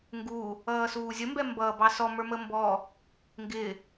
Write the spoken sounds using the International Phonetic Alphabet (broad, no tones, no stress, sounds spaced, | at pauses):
ŋ ɡ u | ʌː s uː zʲ ə m b ɛ m b ʌː b ɑ s ɔ m ə˞ m ə m b ɔ | ŋ ɡ ɪ